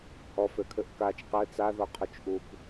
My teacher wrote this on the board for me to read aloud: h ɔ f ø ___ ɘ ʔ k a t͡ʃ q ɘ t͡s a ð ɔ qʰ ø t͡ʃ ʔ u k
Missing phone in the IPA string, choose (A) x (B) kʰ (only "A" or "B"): B